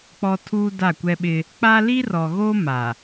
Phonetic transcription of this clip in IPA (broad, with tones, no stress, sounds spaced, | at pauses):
k͡p ɔ˦ tʰ uː˦ d a˦˨ kʷ ɛ˦ ɓ ɪ˦ | k͡p a˦ l i˦ r ɔ˨ ɣ oː˦ m a˨